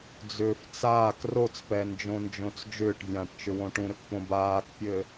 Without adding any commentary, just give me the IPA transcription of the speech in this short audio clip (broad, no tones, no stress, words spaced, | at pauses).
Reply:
d͡zʏːft͡saːk rot͡spɛnd͡ʒõnd͡ʒõt͡s d͡ʒʏːʈvʲãːʈt͡ʃʏ wõʈũɾʏkpõ baːkpʲɘ